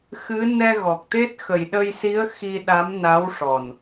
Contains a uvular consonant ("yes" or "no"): no